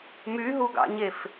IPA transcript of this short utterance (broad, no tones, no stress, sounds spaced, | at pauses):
m y ɦ u ɡ ɑ̰ ɲ e f